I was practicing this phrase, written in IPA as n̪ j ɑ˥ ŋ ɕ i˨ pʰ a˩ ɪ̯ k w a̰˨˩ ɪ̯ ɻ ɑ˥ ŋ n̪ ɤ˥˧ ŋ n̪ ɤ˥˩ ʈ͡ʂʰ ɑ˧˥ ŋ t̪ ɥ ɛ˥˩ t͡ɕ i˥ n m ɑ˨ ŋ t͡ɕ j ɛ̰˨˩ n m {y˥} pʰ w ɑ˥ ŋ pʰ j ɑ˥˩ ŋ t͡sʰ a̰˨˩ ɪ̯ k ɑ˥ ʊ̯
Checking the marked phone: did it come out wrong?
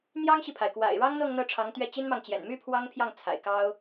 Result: no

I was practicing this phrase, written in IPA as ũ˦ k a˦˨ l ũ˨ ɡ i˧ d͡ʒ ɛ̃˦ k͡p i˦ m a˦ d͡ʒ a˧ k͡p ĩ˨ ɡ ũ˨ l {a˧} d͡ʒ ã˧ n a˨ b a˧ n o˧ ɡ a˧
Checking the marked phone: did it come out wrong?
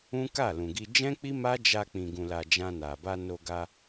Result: yes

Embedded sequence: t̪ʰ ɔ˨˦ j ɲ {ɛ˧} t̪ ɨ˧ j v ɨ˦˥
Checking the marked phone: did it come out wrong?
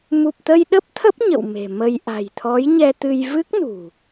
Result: no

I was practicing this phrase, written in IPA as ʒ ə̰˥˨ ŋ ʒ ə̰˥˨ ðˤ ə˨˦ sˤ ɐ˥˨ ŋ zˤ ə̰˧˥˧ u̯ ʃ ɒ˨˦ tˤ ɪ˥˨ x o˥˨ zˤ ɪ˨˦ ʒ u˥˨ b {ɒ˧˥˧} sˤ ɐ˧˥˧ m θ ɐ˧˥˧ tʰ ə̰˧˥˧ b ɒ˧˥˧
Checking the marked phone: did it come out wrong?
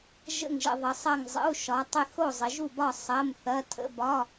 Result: yes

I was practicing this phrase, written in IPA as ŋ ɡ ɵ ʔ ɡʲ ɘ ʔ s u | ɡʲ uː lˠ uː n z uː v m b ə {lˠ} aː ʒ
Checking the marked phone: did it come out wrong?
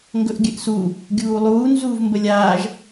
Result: yes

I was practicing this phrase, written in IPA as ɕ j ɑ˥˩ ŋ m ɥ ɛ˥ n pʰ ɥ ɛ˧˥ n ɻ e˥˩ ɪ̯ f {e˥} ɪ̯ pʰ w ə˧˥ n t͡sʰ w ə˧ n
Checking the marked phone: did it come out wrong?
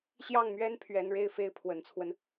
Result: no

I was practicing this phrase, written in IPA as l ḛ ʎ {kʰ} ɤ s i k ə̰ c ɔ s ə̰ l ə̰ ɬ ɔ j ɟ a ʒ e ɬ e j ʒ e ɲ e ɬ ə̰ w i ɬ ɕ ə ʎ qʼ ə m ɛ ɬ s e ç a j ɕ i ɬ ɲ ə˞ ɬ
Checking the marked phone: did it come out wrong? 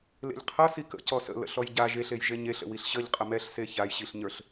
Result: yes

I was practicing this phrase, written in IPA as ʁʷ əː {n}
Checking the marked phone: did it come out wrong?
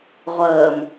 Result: yes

